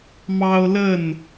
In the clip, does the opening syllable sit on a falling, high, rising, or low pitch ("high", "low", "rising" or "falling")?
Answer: high